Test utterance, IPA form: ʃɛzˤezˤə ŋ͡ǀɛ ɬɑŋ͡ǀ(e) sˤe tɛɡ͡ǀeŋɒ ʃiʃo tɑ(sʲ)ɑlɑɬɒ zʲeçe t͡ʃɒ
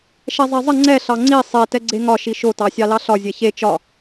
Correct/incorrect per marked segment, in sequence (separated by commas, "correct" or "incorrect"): incorrect, correct